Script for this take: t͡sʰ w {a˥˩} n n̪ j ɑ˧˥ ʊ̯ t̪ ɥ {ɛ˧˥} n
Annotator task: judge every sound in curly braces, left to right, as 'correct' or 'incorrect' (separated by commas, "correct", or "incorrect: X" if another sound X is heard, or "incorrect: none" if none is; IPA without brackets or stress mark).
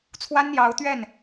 incorrect: a˥, incorrect: ɛ˥˩